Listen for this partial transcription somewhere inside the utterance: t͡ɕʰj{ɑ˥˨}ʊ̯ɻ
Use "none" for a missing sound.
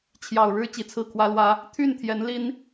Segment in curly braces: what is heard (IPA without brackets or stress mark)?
ɑ˨˩